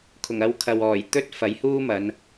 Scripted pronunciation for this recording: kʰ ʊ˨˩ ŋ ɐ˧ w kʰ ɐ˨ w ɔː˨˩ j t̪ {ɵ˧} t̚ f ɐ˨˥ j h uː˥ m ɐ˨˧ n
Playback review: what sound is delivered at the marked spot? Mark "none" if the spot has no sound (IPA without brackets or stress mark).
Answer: ɵ˥